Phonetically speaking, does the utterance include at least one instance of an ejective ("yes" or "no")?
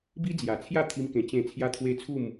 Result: no